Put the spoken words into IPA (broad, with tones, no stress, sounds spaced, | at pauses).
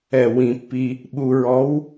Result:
ɛ˧˩˧ w ĩ˩˧ pː i˧ | ɓ u˧ ɹ ɔ˧˥ w